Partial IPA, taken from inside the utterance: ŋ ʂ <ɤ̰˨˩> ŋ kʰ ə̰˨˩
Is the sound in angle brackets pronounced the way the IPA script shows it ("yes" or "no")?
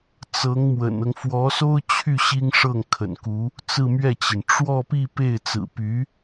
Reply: no